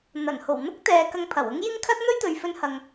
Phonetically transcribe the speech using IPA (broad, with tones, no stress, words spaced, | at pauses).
n̪ɐ˨˩n ho˨˩wn̪ʊ˥k̚t̪ɛː˨ kɐ˧ŋpʰɐ˨˩wʊ˥ŋ jɪ˥ŋkʰɐ˥t̚ n̪ɵ˥ɥt̪ɵ˨ɥfɵ˧nhɐ˨ŋ